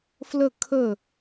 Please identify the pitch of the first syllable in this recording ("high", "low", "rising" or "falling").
falling